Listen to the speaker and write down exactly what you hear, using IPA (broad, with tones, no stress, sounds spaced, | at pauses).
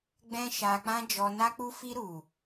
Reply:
ɡ͡b ɛ̃˦ ʃ a˧ k͡p ã˦ d͡ʒ ɔ˧ n a˧ k͡p u˧ f i˧ ɾ u˨